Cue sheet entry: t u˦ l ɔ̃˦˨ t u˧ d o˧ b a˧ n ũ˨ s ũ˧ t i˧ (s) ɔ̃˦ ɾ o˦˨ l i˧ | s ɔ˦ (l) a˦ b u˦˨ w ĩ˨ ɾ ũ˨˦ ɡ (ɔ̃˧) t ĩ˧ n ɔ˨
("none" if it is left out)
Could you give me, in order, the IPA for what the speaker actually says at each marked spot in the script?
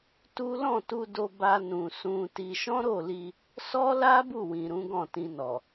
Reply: ʃ, l, ɔ̃˦˨

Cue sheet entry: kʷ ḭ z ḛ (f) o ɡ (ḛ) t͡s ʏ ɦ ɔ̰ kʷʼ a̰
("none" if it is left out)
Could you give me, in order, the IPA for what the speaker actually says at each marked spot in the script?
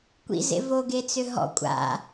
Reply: v, e

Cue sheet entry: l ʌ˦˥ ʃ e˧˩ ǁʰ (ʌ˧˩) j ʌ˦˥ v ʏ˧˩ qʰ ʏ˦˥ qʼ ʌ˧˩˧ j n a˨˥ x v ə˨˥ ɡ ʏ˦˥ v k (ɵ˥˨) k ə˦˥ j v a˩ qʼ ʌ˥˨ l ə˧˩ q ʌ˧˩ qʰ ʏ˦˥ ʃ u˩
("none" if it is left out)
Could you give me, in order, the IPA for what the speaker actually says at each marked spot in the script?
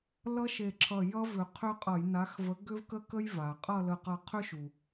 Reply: ʌ˧˩, ə˥˨

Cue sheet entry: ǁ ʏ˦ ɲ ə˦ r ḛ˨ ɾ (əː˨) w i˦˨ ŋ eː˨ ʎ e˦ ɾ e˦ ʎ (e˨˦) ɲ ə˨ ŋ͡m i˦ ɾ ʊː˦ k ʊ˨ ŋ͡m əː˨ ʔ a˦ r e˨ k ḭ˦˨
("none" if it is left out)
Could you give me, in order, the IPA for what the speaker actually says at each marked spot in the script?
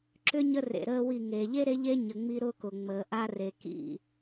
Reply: əː˦, e˦

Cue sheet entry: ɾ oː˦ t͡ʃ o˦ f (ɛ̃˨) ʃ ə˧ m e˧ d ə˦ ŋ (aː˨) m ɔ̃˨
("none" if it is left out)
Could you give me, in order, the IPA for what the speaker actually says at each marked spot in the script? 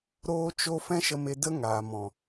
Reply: ɛ̃˦, aː˨

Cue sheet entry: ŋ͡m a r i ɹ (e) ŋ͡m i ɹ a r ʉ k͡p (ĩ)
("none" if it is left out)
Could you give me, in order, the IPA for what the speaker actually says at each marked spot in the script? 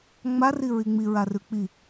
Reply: i, i

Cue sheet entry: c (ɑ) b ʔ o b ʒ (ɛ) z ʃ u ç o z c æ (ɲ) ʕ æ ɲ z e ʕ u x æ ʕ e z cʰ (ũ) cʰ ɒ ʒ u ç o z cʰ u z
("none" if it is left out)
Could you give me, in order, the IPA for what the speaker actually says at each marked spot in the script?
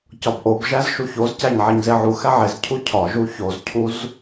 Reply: ɒ, æ, ɲ, u

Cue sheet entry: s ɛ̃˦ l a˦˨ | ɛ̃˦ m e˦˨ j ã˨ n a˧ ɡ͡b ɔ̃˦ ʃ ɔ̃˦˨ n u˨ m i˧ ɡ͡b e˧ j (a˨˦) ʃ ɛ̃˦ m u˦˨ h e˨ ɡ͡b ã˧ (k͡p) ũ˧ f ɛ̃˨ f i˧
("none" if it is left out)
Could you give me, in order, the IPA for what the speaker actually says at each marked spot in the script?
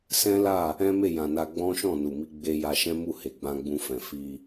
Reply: a˧, ɡ͡b

